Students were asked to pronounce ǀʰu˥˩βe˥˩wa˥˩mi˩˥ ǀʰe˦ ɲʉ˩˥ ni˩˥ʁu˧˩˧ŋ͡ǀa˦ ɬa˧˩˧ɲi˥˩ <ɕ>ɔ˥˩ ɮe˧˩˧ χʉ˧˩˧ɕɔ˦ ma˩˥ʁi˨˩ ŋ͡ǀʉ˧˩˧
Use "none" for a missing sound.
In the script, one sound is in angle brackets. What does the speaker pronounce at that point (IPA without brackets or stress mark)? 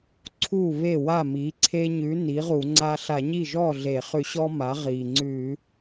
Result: ʒ